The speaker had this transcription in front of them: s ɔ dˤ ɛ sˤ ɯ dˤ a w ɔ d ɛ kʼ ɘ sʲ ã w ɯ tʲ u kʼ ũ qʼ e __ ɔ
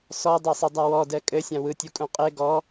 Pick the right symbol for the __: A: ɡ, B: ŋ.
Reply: A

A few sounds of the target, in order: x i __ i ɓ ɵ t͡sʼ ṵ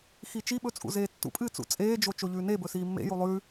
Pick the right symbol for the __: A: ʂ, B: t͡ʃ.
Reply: B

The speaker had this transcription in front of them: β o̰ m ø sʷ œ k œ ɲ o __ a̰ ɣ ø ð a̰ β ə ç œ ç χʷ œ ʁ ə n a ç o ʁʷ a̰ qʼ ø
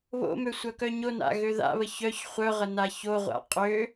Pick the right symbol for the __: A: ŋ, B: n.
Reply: B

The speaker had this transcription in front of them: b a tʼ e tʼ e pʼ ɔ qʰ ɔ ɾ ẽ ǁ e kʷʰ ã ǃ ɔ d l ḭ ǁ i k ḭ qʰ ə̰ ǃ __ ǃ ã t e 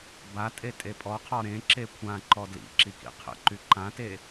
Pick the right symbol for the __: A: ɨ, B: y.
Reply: B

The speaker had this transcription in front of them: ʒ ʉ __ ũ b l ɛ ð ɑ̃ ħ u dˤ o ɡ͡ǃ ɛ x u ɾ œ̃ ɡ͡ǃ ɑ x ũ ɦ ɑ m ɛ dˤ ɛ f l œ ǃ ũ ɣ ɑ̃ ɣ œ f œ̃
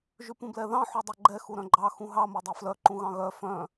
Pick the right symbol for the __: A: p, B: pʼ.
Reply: A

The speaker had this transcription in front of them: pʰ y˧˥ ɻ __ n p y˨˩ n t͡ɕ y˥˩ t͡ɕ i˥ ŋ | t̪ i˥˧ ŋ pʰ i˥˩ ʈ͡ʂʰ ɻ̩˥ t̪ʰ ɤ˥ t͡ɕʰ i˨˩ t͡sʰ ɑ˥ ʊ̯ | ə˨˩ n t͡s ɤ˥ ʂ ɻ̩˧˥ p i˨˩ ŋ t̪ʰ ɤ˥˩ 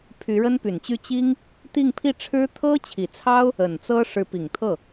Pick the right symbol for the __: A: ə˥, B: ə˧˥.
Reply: A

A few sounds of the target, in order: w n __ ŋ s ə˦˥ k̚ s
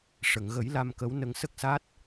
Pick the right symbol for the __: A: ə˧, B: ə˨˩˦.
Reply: A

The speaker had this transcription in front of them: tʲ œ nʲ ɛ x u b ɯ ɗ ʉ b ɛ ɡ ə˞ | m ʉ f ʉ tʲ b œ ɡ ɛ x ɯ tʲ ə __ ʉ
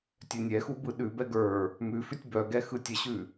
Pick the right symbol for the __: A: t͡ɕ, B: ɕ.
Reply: B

